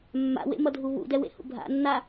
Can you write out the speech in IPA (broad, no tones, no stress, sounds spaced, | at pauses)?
mː a̰ w ḛ m ʌ dʱ u β ṵ d ɛ w ḛ h ṵ bʱ a̰ nː a